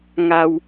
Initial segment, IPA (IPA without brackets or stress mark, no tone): ŋ